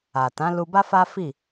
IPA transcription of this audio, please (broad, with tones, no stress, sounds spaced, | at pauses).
a˨ t ã˨˦ l u˧ b a˦ f a˦ f i˦˨